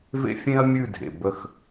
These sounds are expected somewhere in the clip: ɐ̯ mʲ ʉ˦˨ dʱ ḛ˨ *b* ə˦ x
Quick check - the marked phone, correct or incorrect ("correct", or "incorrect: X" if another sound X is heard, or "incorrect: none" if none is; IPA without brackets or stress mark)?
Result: correct